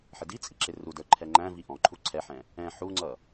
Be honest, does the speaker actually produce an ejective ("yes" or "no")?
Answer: yes